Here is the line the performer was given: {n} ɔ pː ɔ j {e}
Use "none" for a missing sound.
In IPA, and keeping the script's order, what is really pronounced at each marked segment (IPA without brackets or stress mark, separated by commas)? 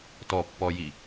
t, i